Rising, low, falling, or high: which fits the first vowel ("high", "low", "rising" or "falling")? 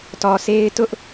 low